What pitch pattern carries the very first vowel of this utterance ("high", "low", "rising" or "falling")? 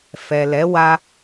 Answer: low